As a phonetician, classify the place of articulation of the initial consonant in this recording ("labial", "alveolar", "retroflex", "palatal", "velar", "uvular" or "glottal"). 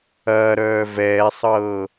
alveolar